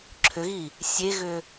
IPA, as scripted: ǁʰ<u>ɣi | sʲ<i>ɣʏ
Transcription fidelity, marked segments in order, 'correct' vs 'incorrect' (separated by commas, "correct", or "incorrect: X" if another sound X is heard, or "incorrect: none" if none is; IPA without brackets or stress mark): incorrect: ʏ, incorrect: e